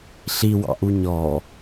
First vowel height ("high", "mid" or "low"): high